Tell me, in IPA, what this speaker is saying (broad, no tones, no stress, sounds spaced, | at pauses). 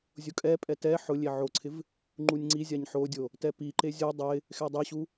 zʲ ʊ kʼ ɛ pʼ ɛ t ɛ ħ ʊ lʲ e ʕ o ǀʰ ɪ v | ŋ͡ǃ u nʲ ŋ͡ǀ i zʲ a ɲ ħ o dʲ o | t ɛ p i ǃ e zʲ u dˤ ɪ | x ɛ dˤ e ɕ u